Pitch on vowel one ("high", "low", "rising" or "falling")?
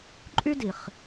high